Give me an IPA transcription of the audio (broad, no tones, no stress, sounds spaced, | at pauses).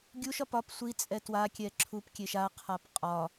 ɡʲ u ʃ ɒ p ɒ p sʷ i t͡sʼ ɛ t w a kʲ ɛ ǁʰ u p kʲ e ʃ a qʰ a p qʼ ɒ